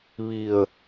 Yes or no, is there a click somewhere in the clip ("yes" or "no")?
no